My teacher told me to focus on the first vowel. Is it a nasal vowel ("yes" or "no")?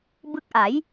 no